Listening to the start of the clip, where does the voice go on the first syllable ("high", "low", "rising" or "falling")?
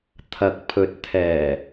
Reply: rising